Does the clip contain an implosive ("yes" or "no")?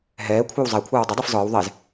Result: no